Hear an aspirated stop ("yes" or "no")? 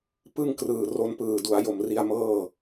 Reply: no